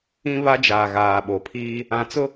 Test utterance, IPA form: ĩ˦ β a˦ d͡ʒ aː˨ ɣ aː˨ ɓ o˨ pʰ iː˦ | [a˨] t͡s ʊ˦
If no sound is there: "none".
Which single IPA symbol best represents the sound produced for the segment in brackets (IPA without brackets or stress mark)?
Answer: ã˨